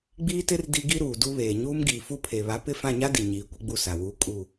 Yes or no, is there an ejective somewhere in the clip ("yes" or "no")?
yes